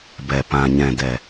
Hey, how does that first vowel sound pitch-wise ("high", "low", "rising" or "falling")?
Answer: low